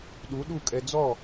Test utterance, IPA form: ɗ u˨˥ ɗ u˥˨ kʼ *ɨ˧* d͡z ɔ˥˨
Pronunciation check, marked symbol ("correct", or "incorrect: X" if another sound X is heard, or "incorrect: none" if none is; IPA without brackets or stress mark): incorrect: ɛ˧